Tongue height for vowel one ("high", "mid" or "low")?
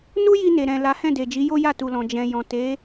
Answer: high